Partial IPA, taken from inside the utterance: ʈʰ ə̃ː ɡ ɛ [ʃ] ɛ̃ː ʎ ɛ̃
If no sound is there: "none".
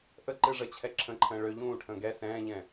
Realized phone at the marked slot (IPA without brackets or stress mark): s